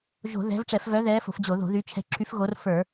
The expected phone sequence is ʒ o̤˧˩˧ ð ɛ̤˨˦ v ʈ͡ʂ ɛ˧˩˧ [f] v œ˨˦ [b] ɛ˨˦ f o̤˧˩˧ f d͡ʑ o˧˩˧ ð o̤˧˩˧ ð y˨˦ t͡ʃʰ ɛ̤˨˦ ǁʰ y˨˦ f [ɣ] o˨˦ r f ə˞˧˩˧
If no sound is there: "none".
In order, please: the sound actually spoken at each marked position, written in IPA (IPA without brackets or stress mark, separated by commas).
f, ð, ɣ